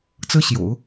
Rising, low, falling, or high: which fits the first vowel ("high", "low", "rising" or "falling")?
high